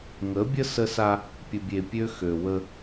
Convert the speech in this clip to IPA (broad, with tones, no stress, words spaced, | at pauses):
ŋə˨˦bʲə˦ sə˦sa˦ | pʲə˨bʲe˨ pʲø˦xø˨wə˦